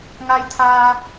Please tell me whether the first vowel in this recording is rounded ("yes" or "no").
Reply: no